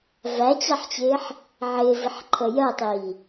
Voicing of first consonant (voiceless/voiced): voiced